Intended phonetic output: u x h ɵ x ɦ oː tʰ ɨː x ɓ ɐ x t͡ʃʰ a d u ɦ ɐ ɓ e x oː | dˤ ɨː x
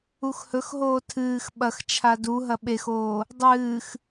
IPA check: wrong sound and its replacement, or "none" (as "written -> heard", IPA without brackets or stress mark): none